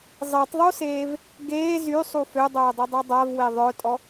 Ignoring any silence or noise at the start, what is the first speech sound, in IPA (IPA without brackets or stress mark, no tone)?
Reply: zˤ